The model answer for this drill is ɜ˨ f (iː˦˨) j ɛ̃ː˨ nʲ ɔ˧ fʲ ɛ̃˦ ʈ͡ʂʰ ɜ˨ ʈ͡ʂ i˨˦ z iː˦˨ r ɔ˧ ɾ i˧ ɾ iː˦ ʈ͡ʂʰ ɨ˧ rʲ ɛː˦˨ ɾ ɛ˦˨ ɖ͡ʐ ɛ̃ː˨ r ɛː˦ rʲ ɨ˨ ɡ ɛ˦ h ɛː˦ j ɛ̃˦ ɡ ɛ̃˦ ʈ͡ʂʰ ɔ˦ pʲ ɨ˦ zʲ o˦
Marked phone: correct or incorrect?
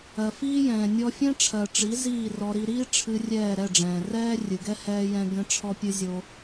incorrect